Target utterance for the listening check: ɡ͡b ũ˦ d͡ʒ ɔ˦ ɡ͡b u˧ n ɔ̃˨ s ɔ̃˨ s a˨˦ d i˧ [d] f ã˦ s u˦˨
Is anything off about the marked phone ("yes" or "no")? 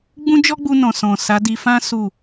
yes